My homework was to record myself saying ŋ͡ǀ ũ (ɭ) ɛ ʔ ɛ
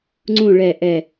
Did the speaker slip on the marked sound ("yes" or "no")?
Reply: no